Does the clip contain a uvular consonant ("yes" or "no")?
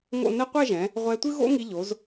yes